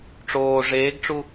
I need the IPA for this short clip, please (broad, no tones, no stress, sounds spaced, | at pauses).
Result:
ʈ͡ʂ oː ʐ eː ɡ ʈ͡ʂ u